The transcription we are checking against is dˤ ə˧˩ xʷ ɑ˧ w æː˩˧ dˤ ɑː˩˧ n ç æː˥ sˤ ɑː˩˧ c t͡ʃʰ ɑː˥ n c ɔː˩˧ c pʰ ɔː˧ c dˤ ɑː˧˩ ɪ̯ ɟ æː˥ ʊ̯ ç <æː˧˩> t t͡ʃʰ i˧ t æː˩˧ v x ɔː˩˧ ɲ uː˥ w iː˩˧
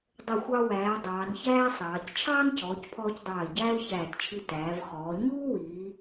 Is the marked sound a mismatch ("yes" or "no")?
no